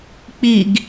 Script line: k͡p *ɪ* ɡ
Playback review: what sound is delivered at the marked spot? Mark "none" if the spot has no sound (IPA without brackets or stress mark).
i